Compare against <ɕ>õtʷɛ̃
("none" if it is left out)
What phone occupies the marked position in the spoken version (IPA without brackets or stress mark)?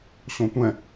ɕ